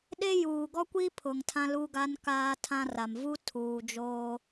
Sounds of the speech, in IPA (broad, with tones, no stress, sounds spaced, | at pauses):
ɗ e˦ j uː˨ ɡ ɔ˦ kʷ i˦ pʰ ʊ˨ ŋ tʰ ã˦ l u˦ ɡ a˦ n k aː˦ tʰ ã˦ r a˨ m v u˦ tʰ uː˨ d͡ʒ oː˦